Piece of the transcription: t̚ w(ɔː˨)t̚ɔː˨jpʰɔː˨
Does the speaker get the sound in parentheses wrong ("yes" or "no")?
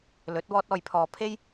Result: yes